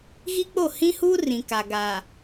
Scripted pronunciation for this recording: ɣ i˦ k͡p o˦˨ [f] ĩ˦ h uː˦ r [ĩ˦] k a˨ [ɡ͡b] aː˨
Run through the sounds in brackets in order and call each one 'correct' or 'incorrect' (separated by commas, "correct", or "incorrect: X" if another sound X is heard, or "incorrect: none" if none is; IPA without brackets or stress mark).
incorrect: h, incorrect: ĩ˨, incorrect: ɡ